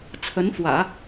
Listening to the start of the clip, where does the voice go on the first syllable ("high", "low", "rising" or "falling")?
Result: rising